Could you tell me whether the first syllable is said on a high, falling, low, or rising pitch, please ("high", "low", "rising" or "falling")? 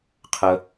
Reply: high